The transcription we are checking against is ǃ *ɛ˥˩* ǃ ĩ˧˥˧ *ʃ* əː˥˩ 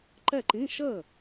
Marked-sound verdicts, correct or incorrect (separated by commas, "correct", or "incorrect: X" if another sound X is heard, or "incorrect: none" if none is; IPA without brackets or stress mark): correct, correct